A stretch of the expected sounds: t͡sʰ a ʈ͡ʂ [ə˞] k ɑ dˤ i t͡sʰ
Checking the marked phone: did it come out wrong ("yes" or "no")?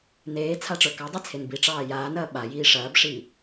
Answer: no